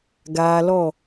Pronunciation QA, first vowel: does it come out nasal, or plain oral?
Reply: oral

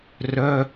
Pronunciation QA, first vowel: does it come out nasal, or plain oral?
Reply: oral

